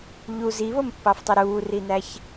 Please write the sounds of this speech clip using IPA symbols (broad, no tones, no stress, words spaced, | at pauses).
ʎu ziβompːɑftˤy ɾuːrinæç